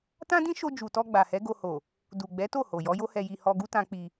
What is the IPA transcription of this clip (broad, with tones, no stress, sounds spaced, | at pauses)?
t ã˦ d ĩ˦ ʃ o˧ d͡ʒ u˨ t ɔ˧ ɡ͡b a˨ h ɛ˨˦ ɡ o˧ h o˨ | d u˨ ɡ͡b ɛ˨˦ t o˦˨ h o˨ j ɔ˨˦ j o˦ h ɛ˧ j i˧ h ɔ˧ ɡ u˦ t ã˧ k͡p i˧